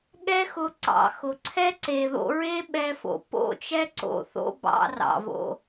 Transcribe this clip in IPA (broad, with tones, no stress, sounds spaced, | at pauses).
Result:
ɠ ɛ˦ x ʊ˧ ǀ ɑ̰˨ x ʊ˨ ǀʰ ɛ˦ ǀ e˨ ð o̰˧ ɹ e˦ ɓ ɛ˧ f o̰˨ p o̰˦˨ t͡ʃ ɛ˦ ǀ o̰˨ θ o̰˧ b ɑ̰˧ r ɑ̰˨ v o̰˧